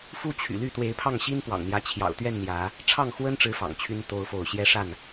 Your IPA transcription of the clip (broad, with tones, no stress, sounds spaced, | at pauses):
f u˦ t͡ɕʰ y̰˨˩ l y˥˨ t̪ w e˨˦ ɪ̯ pʰ ɑ˥˨ ŋ ɕ i˦ n p w ɑ̰˨˩ ŋ n̪ j ä˨˦ t͡ɕʰ j ɑ̰˨˩ ʊ̯ t̪ ɥ ɛ˥˨ n n̪ j ä˨˦ | ʈ͡ʂʰ ɑ˥˨ ŋ x w ə˦ n ʈ͡ʂ ɻ̩˨˦ f ɑ̰˨˩ ŋ t͡ɕʰ y˦ n t̪ o˦ ʊ̯ f o˥˨ ʊ̯ ɕ j ɛ˦ ʂ a˥˨ n